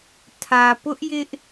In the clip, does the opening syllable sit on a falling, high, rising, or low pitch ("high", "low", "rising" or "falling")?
low